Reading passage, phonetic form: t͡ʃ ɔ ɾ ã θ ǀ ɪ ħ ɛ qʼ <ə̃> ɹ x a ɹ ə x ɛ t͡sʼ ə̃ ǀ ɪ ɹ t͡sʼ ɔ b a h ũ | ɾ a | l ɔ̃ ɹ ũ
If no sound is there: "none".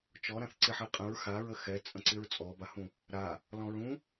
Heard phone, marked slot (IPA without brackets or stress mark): ə̃